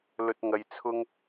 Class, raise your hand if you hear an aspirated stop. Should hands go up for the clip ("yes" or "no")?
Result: yes